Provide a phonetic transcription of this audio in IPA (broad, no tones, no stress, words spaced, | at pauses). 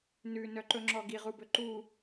nʉnœǃɵŋ͡ǁɔ ɡiʁubɵ ǃu